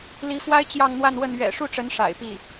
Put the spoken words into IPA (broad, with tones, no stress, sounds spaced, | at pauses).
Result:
l i˧˥ f w a˥ ɪ̯ t͡ɕ j ɑ˥˧ ŋ n̪ w a˥˧ n w ə˥˩ n ɥ ɛ̰˨˩ ʂ u˥˩ ʈ͡ʂ ə˧˥ n ʂ a̰˨˩ ɪ̯ p i˥˩